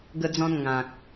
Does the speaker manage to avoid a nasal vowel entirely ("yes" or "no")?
no